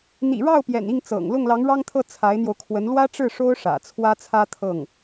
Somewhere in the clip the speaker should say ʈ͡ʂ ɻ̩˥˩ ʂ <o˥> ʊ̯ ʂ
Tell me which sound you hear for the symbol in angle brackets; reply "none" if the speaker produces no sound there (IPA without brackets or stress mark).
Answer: o˥